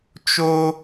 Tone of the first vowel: high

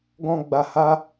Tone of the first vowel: low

